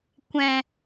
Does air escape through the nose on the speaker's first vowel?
yes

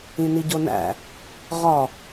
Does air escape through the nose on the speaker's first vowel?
yes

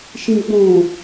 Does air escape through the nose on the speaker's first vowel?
yes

